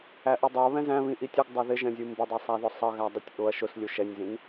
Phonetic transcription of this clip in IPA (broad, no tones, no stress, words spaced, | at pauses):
æʔudˤə˞ βɛ̃zæ̃βĩ ʔitʲʊɡ dˤə˞ðɪʒɛ̃zʲu mbɪdˤʌ sˤæðʊsˤʌ ɣædˤɪtʲʔʊɐ̯ ʃʊslʲu ʃɛnʲzĩn